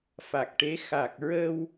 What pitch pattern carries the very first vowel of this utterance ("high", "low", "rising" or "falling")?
low